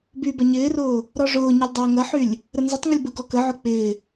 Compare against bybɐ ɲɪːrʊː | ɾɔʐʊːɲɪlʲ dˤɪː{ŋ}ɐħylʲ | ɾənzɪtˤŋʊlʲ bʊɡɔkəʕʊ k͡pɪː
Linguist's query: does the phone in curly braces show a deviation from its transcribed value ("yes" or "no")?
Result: no